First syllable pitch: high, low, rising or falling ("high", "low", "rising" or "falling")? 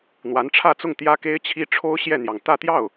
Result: rising